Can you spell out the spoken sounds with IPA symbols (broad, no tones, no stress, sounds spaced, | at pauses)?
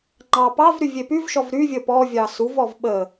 ŋ͡ǃ ɑ p ɑ v ɾ y vʲ e p y v ʃ ɔ v ɾ y vʲ ə p ɔ vʲ ɑ s u v ɔ v ɓ ə